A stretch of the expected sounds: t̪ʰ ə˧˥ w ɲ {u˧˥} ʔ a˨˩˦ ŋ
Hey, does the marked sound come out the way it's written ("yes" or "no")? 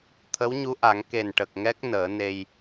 yes